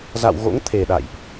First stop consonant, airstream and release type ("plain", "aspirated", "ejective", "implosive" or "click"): aspirated